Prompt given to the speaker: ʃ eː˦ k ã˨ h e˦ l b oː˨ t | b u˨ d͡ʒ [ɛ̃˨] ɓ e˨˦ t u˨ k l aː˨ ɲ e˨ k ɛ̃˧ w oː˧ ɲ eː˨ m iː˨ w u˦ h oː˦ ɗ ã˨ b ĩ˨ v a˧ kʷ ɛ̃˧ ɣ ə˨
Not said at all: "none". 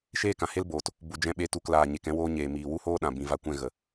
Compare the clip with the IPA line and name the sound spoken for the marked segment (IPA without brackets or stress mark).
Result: ɛ̃˧